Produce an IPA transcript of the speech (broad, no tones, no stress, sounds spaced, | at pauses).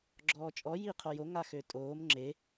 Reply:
ɡ͡ǁ ɔː t͡ʃʼ ɔ j i qʰ o j o ŋ a x ø tʼ oː m ŋ͡ǁ e